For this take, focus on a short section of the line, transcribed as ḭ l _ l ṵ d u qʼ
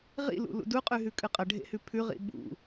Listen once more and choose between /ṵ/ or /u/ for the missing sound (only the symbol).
ṵ